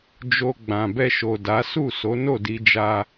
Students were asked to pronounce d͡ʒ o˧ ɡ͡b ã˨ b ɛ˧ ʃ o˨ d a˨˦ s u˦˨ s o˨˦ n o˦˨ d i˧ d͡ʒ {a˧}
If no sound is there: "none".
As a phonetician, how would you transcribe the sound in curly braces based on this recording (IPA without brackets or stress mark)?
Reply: a˧